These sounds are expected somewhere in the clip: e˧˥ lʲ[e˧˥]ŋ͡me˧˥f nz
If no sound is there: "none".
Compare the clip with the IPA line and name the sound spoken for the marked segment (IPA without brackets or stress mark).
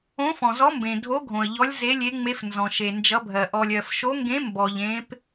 e˧˥